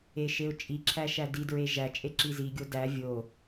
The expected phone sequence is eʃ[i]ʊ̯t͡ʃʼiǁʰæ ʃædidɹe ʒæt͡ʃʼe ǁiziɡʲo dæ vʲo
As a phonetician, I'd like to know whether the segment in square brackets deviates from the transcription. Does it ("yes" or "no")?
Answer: yes